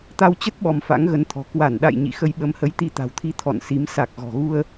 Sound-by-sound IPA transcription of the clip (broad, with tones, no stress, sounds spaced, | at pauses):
t̪ a˧ w t͡ɕ ə˦˥ t̚ ɓ ɔ˧ m f a̰˧˥ ŋ ɣ ə˨˦ n t̪ʰ ɔ̤˨˩ k w a˧˩ n ɗ a̰˧˨ j ɲ ḭ˧˨ x ə˧ j ɓ ə˨˦ m h ə˨˦ j t̪ i˧ t̪ a̤˨˩ w t̪ʰ i˧ t̪ʰ ɔ̰˧˨ n s i˨˦ m s a˨˩ k̚ ɣ ɔ̤˨˩ ɣ u˧ ə̯